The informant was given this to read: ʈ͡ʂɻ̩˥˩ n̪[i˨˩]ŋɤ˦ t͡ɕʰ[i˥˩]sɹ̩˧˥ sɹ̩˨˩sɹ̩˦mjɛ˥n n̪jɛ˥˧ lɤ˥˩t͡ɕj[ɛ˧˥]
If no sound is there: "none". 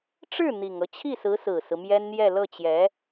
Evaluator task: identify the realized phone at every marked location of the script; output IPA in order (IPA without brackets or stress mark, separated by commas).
i˨˩, i˥˩, ɛ˧˥